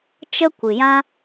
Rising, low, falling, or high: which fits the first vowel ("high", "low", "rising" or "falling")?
high